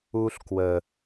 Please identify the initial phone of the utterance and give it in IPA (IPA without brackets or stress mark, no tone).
u